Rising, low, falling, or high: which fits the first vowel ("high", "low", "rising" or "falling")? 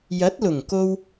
rising